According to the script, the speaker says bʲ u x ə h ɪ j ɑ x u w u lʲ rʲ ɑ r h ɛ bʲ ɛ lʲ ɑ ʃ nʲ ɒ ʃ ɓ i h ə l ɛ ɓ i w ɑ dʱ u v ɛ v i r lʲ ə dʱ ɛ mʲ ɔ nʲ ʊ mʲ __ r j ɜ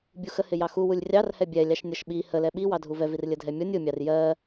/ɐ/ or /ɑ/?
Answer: ɑ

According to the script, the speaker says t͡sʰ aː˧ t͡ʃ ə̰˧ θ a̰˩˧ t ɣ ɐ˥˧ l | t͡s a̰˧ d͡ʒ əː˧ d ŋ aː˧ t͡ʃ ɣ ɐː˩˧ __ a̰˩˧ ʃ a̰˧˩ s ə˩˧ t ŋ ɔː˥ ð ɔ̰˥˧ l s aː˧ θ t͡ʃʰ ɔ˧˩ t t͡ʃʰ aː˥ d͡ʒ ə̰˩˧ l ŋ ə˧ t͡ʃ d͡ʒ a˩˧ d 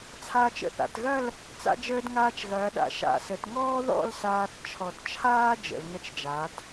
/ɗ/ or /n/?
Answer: ɗ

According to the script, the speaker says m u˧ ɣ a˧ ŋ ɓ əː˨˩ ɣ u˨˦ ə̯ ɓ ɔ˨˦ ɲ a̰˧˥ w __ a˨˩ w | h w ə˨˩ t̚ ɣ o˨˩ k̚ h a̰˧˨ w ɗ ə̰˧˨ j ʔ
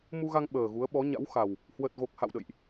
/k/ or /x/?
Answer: x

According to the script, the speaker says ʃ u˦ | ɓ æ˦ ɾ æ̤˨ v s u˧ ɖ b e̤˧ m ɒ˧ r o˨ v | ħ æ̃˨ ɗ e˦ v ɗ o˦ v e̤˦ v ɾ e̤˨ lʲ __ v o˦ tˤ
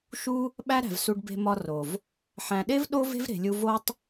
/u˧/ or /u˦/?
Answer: u˧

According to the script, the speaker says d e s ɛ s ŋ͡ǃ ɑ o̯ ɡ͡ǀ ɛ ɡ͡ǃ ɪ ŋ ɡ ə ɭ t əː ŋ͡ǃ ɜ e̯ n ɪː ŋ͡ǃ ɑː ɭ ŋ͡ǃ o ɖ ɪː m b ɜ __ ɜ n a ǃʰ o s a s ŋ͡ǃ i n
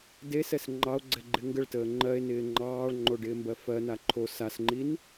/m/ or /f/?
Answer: f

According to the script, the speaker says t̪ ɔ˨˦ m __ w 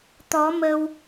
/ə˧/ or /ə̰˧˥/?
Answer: ə˧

